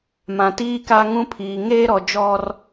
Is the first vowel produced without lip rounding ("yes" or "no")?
yes